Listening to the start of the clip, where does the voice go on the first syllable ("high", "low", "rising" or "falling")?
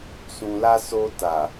low